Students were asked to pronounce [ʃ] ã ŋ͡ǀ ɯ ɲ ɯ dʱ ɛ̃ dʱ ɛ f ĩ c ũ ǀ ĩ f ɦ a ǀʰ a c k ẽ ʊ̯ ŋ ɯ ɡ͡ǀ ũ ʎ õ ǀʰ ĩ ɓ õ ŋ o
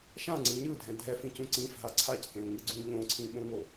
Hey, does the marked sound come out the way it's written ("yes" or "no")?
yes